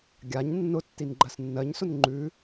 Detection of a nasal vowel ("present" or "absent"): absent